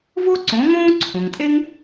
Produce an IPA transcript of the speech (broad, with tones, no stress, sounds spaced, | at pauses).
v o˥ ǀ õ˩˥ ŋ õː˥ ǀʰ õ˩ ŋ tʼ e˥ ŋ